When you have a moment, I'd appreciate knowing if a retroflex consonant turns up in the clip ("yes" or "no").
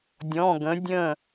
no